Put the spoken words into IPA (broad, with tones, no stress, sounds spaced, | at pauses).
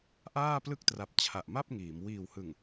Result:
ʔ aː˥˩ p l ɯ˥˩ k̚ t r a˨˩ p̚ t͡ɕʰ a˨˩ ʔ m a˥˩ p̚ ŋ iː˩˦ m w iː˨˩ w h ɯ˨˩ ŋ